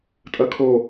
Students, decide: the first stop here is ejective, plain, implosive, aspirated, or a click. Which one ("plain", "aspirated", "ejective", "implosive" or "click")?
ejective